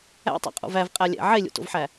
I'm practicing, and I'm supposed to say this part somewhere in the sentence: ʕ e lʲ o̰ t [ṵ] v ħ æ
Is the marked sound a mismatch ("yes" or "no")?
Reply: yes